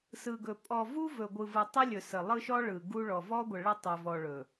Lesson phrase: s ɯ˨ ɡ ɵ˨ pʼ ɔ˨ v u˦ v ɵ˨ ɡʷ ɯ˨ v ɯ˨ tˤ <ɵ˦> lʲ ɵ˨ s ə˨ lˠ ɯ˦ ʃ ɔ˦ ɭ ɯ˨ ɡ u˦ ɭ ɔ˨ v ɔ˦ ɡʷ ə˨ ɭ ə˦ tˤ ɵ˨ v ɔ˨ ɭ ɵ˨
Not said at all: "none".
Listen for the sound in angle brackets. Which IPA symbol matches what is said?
ɵ˦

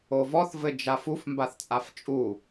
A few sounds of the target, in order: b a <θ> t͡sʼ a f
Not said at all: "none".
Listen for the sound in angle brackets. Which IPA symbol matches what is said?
θ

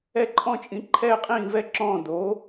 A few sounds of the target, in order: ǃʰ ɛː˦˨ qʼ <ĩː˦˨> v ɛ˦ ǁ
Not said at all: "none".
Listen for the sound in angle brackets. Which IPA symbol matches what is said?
ĩː˦˨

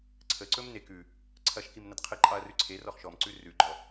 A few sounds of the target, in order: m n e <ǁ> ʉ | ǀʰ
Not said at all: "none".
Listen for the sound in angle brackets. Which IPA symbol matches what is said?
k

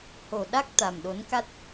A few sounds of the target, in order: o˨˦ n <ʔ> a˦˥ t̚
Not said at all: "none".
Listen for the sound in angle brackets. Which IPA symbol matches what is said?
k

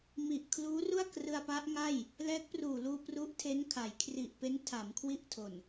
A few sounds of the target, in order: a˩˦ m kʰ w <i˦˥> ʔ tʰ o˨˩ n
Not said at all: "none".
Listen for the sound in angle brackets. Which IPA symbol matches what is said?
i˦˥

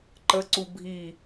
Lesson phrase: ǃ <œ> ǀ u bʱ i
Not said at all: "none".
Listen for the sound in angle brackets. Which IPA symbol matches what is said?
ə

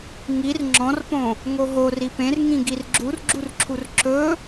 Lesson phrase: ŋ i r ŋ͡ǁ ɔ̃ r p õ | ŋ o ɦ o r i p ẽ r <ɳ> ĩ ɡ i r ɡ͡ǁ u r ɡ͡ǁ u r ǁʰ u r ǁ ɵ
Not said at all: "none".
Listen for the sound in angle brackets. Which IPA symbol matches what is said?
ŋ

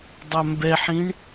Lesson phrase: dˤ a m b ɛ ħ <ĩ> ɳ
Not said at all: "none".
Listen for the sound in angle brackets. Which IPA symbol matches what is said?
ĩ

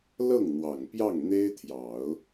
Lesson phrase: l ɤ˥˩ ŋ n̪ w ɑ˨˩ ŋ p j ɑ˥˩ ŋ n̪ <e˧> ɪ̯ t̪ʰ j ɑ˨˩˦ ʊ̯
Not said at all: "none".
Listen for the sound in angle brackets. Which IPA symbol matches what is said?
e˥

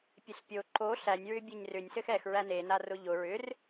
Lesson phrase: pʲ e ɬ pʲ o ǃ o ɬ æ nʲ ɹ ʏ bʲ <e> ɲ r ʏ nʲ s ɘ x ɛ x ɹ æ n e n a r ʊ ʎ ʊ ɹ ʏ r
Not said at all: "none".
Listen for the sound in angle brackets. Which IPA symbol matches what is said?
e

